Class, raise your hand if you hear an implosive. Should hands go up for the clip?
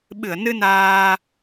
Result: yes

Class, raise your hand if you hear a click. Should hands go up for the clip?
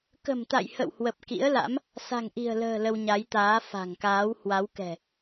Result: no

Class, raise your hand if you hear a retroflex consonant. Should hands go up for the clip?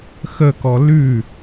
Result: no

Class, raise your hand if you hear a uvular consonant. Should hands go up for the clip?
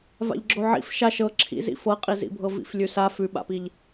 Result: yes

